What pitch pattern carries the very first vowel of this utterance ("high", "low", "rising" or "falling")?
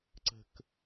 low